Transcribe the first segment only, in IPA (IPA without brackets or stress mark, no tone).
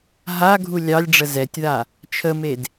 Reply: ɦ